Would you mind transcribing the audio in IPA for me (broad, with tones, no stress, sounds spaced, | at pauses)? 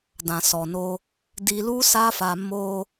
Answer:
d ã˨ s ɔ˨ n o˧ | d i˧ l u˦ s a˦ f a˧ m o˧